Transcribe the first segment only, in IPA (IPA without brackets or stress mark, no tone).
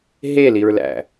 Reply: ɦ